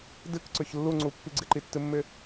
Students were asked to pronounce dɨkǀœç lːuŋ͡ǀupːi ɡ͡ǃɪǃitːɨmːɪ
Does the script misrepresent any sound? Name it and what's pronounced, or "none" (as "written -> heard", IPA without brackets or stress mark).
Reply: ɡ͡ǃ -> ɡ͡ǀ